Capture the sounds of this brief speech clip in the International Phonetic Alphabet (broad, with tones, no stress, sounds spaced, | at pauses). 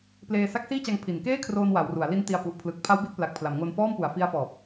p l eː˧ s a˦˥ k̚ s iː˥˩ t͡ɕ a˧ ŋ pʰ i˩˦ n k eː˥˩ kʰ r oː˧ n w a˩˦ w r u˩˦ a̯ l i˦˥ n t i˧ a̯ p u˨˩ ʔ pʰ l ɯ˨˩ k̚ pʰ a˦˥ w b i˦˥ t̚ p l a˨˩ k̚ pʰ l a˩˦ m ŋ o˧ n f ɔː˥˩ m p u˨˩ a̯ f i˦˥ a̯ f ɔː˨˩ p̚